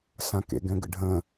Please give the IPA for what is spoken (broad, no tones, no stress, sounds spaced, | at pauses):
s ã k ḛ ɡ ɛ̃ ɡ ə̰ ɖʱ ə̃